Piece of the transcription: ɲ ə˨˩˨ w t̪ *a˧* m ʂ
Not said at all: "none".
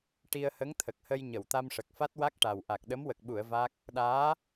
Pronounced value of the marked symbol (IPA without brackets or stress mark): a˧